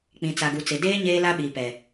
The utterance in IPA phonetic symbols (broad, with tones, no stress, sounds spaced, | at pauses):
k͡p ĩ˨ t͡s a˨ ɡ u˨ t͡s ɪ˨ d eː˦ ɲ eː˦ l a˦ ɓ iː˨ p ɛ˨